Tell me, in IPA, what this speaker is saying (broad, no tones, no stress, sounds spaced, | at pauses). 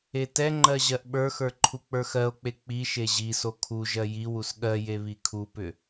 e t ɛ ŋ͡ǃ ɜ ʑ ɜ ʔ ɓ ə˞ x ə˞ ǃʰ u k͡p ə˞ x ɜ o̯ k͡p e k͡p i ʃ e ʑ i s o kʰ u ʒ ɜ j i w u s ɠ ɜ j e β i kʰ u p ʏ